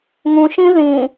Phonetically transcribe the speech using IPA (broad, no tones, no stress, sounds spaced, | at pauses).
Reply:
ŋ ũ ʃ ĩ ð ĩ